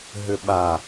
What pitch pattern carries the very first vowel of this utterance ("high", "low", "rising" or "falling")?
low